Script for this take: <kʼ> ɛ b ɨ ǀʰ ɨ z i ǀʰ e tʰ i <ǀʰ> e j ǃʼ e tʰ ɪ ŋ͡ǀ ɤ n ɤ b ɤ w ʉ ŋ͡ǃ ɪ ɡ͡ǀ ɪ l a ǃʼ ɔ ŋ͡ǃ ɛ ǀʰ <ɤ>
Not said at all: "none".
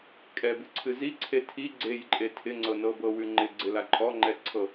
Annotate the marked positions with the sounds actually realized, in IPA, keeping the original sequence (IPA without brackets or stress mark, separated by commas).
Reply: kʼ, ɡ͡ǀ, ɤ